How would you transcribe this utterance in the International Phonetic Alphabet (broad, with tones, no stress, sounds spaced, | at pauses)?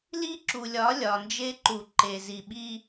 l i˦ ǁ u˨ lʲ ɒ˨˦ lʲ ɒ˨ n d͡ʒ e˦ ǃ u˨ ǃ e˨ z i˨ ɓ i˦